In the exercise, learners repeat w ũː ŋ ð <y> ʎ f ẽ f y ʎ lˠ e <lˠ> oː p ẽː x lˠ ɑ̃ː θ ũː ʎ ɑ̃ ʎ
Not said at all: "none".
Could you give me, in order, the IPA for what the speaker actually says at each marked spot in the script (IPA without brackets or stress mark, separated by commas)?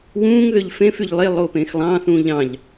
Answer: ø, lˠ